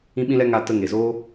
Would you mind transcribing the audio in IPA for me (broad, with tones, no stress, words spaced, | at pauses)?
ĩ˧ɓĩ˧lɛ˧ ŋa˧tə˧ ŋe˨zoː˦